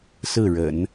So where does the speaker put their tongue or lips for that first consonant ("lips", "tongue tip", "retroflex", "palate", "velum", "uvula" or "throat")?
tongue tip